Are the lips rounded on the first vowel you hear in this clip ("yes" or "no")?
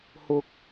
yes